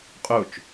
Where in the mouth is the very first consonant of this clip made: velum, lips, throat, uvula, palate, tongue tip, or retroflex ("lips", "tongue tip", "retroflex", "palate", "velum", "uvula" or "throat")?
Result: uvula